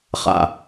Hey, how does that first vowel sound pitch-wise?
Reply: low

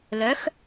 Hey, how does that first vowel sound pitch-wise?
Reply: rising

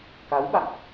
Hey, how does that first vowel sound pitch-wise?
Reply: rising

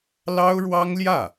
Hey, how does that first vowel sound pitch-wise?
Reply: high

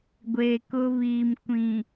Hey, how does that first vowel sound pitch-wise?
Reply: low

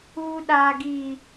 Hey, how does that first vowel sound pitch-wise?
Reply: high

